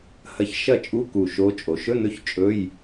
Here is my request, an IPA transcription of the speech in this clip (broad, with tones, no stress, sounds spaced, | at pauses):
h ɐ˧˥ ç ʃ ɐ˥˨ t͡ʃʼ u˧˥˧ k u˧˩ ʃ o˧˥ t͡ʃʼ o˩ ʃ ɵ˧˥˧ n ɵ˧˥ ç t͡ʃʼ ɵ˧˥˧ j